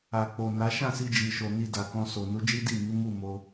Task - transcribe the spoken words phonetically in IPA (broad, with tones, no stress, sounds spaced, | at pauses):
a˨ k͡p o˨ n a˨˦ ʃ ã˦˨ s i˧ d͡ʒ i˨ ʃ o˨ n i˧ d a˨ k ɔ̃˧ s o˨ n u˨˦ d͡ʒ i˦ d i˦˨ m i˨˦ m u˦˨ m o˧